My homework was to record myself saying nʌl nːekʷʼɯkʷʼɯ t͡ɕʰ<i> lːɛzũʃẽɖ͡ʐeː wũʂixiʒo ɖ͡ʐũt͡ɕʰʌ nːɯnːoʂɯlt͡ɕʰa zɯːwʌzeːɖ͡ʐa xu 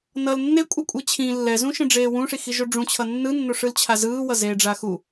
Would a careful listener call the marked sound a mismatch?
yes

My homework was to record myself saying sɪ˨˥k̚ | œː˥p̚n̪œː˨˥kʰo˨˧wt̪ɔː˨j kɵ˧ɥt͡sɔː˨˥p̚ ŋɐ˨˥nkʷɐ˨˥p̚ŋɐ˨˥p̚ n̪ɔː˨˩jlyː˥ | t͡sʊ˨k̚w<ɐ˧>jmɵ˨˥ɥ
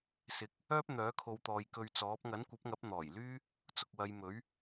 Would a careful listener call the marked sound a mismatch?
yes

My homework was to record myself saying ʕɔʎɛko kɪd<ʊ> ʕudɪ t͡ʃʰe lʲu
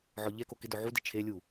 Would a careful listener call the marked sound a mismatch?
no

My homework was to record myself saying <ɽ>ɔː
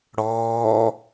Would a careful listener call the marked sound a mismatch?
no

